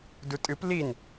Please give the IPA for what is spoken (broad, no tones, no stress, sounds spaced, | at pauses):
d u tʼ ɨ p l i n